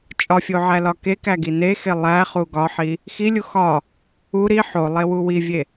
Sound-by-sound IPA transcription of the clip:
t͡ʃʼ ɒ fʲ o ʕ æ l ɒ k e k æ ɡ i n e x e lˠ æ χ u ɡ ɒ ħ i | x i lʲ u x ɒ | u ɾ i ħ o lˠ e w u w i vʲ e

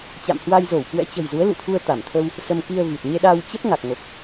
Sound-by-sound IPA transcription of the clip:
t͡ɕ a̰˧˨ m h w a˧ j z o˧˩ w k w ɛ̰˧˥ t͡ɕ ə̤˨˩ j z u˨˦ ə̯ l ṵ˧˨ t̪ʰ u˧ ə̯ t̪ a˧˩ m t̪ʰ ə˧ w | s ə˧ m k i˧ ə̯ v i˨˩ t̚ ɲ e˧ ɗ aː˧ w t͡ɕ ə˦˥ p̚ ŋ a˨˩ k̚ ŋ o˨˩ k̚

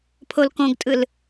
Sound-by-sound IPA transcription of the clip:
pʰ o l k õ ɡ tʼ ɯ l

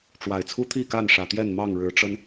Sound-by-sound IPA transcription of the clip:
ʈ͡ʂ w a˨˩ ɪ̯ t͡sʰ u˦ t̪ʰ i˥˨ k a˥˨ n ʂ ä˨˩ t̪ j ɛ˥˨ n m ɑ˥˨ ŋ ɻ ɻ̩˨˦ ʈ͡ʂ ə˦ n

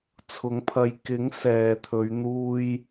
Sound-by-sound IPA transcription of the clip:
t͡sʰ ʊ˨˥ ŋ pʰ ɐ˨˧ j k ɪ˨˥ ŋ s ɛː˨ t̪ʰ ɵ˨˧ ɥ n̪ uː˧ j

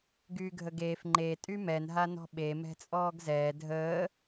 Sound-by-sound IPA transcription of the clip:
ɡ yː ɡʱ ə ɡ eː f ŋ͡ǃ e tʼ y m ɛ n ɦ a n ɔ̤ ɓ e m ɛ̤ t͡sʼ ɔː ɡ z ɛː dʱ əː

